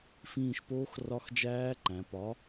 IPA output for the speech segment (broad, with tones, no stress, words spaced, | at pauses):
fĩː˦˨ʃpoː˦˥x rɒ˦˥xd͡ʒæː˦˥ǃæ̃˩˧ pɒ˨˥